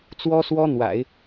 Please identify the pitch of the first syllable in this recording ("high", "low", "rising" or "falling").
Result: high